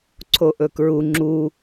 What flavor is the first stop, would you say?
click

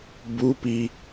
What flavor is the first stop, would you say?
plain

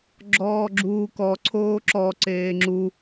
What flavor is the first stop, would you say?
click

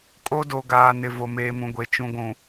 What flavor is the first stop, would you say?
ejective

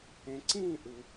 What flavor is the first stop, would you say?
click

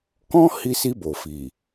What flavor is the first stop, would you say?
plain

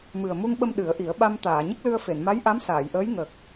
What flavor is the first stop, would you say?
implosive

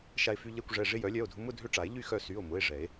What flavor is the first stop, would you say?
plain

